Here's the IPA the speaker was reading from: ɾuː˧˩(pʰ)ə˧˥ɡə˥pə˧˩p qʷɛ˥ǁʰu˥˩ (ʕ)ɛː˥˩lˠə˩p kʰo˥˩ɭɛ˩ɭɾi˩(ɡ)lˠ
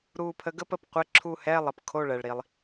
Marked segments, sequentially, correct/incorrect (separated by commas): correct, incorrect, incorrect